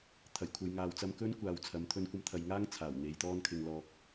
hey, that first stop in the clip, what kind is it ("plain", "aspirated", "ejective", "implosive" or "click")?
aspirated